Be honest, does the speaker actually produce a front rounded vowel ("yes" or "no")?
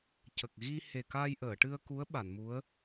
no